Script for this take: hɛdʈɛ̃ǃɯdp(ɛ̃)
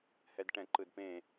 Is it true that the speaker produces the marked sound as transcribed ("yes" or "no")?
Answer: no